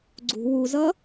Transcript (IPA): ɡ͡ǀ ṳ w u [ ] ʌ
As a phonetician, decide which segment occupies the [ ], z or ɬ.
z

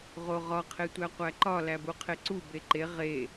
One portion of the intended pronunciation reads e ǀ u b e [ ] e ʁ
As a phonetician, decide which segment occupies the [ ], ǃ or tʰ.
ǃ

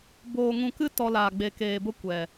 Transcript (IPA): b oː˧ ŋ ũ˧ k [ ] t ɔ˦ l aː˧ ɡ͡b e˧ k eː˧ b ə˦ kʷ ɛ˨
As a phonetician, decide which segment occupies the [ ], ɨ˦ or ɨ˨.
ɨ˦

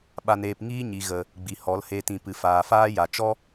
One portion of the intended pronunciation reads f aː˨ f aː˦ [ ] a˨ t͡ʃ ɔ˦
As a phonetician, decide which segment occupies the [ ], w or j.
j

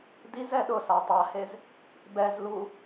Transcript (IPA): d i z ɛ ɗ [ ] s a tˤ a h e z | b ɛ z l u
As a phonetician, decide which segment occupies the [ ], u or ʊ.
ʊ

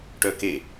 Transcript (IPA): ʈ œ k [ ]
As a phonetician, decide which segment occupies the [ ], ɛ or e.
e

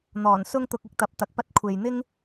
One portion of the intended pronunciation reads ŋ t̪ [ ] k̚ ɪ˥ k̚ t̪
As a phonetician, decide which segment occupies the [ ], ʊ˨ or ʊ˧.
ʊ˧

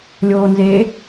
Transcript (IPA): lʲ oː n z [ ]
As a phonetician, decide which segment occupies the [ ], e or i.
e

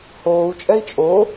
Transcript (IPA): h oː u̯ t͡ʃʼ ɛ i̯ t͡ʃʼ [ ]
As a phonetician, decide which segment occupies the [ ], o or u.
o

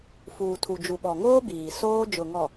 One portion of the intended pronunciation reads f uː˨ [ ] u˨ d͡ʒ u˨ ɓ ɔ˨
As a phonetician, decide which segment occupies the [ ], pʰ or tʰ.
tʰ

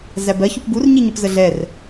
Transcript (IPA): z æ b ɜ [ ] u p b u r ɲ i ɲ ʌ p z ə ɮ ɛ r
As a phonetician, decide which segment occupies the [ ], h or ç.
ç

